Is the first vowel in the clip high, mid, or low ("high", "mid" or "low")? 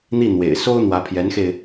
high